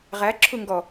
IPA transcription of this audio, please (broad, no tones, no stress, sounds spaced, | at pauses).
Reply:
ʁ æ ǁʰ u ŋ ɡ ɔ